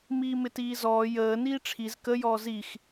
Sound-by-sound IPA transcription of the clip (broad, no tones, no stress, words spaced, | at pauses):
miːmɪtiːzɔː jəː niːʈ͡ʂʰiz kə jɔːzix